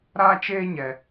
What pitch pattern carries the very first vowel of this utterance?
high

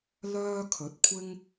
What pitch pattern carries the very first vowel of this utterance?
high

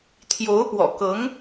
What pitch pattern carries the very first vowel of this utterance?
rising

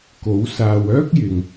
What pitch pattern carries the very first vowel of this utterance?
rising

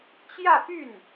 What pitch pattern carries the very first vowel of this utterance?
falling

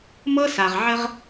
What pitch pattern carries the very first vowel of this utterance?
high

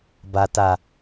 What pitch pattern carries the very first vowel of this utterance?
low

